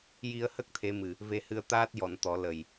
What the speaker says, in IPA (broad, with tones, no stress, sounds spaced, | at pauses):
j i˧ ə̯ h ə˦˥ k̚ t̪ʰ e˧˥ m ɨ˨˩ | v e˧ h ɨ˧ ə̯ t̪ aː˦˥ t̚ j ɔ˨˩˨ n t̪ ɔ˨˩˦ l ə˨˩ j